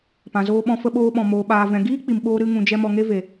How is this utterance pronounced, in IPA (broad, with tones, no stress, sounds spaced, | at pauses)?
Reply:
p ã˨ z oː˧ ɓ ɔ̃˧ f ə˧ ɓ oː˧ ɓ ɔ̃˨ m oː˨ ɓ aː˨ v ɛ̃˨ ɡ iː˦ k͡p i˨ m ɓ oː˧ ɾ ɨ˦ ŋ ũ˧ d͡ʒ ɛ˦ m ɔ˧ ŋ e˦ v e˨